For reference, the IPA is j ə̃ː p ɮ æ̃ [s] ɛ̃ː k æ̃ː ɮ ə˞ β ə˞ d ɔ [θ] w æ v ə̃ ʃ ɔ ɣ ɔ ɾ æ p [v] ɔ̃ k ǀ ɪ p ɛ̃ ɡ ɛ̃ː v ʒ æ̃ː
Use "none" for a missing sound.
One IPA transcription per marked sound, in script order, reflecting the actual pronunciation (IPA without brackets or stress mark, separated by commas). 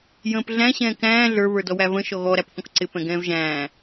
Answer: ɕ, none, θ